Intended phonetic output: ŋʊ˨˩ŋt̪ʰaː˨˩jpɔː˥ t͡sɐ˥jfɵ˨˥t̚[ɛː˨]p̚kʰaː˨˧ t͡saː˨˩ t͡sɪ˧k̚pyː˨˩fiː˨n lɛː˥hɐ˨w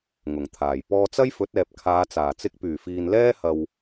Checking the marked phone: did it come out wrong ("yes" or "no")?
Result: no